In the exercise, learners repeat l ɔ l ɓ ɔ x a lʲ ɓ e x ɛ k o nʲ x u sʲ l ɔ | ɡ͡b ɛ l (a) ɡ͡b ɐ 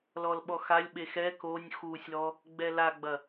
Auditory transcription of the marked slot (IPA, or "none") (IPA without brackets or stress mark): a